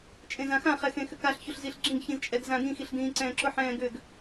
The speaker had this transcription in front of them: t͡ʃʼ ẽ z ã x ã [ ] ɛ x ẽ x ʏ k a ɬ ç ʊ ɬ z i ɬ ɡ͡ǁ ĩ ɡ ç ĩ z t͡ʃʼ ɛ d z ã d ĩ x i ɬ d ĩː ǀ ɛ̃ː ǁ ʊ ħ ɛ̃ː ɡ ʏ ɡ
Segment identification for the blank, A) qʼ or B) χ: B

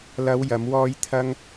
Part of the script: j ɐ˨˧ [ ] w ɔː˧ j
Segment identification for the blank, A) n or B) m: B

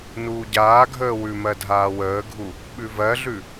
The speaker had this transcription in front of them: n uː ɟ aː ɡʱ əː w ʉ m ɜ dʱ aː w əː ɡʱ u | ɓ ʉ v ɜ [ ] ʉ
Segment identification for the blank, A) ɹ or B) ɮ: B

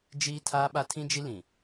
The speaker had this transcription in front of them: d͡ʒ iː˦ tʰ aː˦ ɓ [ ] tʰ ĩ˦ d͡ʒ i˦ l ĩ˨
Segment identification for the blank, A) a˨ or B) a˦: B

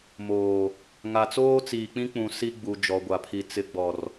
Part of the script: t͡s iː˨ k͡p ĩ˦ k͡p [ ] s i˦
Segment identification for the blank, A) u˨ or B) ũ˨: B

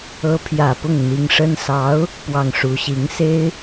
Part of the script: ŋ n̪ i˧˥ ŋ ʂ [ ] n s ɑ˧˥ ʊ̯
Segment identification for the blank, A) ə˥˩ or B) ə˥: B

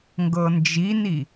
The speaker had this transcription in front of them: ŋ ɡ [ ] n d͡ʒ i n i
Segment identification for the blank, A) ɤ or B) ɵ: A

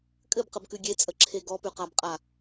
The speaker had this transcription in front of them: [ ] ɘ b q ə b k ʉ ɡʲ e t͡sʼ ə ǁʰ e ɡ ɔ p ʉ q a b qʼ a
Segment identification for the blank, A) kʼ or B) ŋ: A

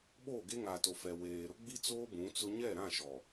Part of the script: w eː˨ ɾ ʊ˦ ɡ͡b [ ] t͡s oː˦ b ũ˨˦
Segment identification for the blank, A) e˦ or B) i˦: B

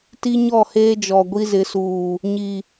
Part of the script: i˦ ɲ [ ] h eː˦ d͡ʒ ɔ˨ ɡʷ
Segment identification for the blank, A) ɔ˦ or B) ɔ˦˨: B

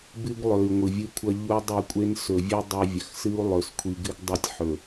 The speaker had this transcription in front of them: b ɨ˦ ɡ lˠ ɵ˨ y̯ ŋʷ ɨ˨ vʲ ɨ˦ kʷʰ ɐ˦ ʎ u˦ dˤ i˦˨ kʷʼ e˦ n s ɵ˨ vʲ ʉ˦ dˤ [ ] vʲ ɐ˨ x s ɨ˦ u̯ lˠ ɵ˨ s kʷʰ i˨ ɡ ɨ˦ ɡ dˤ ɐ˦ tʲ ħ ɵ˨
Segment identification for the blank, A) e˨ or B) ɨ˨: B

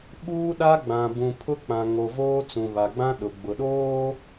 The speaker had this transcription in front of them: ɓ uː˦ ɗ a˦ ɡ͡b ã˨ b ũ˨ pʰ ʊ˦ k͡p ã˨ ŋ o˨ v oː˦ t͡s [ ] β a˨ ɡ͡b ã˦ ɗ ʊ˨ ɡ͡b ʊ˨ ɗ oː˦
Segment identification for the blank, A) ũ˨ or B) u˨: A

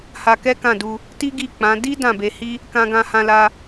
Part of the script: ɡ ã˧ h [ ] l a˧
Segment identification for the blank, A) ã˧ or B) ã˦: A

